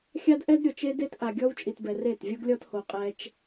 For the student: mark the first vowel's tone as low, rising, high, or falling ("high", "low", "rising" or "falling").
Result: high